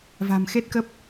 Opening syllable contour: low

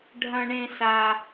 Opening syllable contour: high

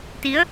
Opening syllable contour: rising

